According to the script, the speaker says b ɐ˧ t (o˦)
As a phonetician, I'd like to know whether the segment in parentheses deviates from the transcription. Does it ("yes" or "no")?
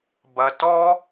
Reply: yes